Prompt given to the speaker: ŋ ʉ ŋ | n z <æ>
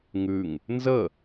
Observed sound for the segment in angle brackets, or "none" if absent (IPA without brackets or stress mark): ə